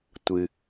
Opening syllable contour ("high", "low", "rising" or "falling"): low